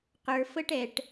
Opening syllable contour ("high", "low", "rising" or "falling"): low